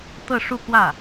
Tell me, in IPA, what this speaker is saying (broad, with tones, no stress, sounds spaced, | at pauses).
t̪ ɤ˥˧ ʂ u˥˧ k w ä˥˩